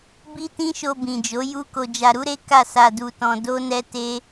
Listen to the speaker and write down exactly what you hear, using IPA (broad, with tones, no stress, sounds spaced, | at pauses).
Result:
b i˦ t ĩ˦ ʃ o˧ b ĩ˨ d͡ʒ o˨˦ j u˦ k o˧ d͡ʒ a˧ ɾ u˦ ɾ e˦ k a˦˨ s a˧ d u˧ t ɔ̃˧ d o˦ n ɛ˦ t e˦